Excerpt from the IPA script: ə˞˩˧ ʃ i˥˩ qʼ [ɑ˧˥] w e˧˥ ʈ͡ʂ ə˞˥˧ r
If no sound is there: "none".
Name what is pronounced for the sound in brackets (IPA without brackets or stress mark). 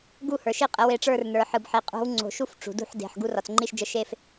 ə˧˥